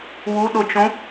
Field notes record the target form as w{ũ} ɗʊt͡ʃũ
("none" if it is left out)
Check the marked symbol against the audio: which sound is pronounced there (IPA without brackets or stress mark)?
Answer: u